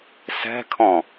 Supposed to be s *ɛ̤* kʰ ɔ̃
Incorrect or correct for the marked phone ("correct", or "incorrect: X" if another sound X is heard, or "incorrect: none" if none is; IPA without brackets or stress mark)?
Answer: correct